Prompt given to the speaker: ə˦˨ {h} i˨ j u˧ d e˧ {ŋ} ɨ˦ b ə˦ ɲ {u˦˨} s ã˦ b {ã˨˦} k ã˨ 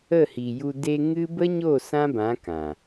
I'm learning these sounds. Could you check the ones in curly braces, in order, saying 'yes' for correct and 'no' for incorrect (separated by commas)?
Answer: yes, yes, no, yes